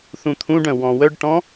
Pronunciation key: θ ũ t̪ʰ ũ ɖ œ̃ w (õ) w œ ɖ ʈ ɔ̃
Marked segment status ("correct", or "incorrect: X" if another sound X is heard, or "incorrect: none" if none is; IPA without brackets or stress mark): incorrect: ɔ̃